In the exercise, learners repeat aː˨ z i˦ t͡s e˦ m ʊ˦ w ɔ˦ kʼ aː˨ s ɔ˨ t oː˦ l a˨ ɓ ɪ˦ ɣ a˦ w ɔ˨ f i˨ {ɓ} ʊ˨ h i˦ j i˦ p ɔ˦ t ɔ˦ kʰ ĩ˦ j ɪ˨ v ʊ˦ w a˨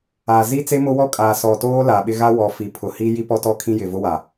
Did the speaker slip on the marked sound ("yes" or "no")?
yes